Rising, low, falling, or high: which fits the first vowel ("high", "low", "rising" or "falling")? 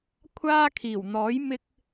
high